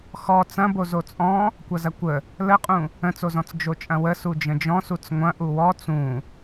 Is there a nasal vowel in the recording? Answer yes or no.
yes